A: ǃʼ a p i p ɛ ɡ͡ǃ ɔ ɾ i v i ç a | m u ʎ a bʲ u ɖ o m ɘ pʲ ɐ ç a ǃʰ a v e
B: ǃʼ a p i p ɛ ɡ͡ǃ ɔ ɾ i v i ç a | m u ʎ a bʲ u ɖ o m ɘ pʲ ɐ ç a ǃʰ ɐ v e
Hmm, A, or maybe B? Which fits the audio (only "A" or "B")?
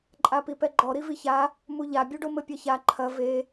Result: B